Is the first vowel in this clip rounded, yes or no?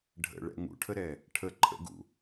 no